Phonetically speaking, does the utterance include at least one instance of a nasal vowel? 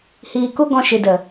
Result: yes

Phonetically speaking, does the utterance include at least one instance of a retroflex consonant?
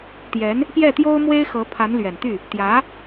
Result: no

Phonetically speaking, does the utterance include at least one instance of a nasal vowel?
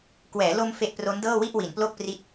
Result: no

